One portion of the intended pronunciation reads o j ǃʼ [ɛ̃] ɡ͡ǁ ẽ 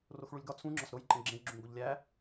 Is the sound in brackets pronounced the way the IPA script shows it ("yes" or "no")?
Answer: no